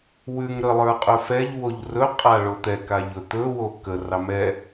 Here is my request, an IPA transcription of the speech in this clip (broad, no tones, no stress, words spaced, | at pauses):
wʉŋ ɾəlˠə˞ qʼɵfɛʎwoʎ rɵqʼa ɭot̪ɛkaʎ ɵt̪ɵwo kərɑ mɛ